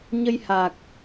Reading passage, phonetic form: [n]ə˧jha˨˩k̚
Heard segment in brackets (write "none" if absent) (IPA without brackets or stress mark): ɲ